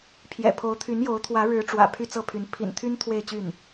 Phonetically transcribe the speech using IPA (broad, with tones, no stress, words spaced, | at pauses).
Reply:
pʰjɛ̰˨˩pʰo˧˥ʊ̯ t̪ʰy˧˥njo˧˥ʊ̯t̪ʰwä˧˥ ɻɻ̩˧˥ ʈ͡ʂwä̰˨˩ pʰy˥˧t͡sɤ˥˩pʰy˧˥n pʰḭ˨˩nt̪ʰy˥n t̪ʰwe˥˧ɪ̯ t͡ɕy˥˩n